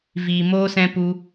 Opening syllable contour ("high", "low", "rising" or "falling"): low